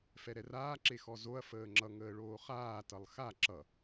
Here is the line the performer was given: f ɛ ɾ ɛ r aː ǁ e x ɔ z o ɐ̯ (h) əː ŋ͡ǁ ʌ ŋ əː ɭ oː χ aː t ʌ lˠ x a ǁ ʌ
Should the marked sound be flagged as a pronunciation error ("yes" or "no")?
yes